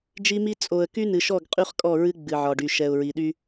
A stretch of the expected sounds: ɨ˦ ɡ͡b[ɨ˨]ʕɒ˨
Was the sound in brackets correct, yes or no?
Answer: yes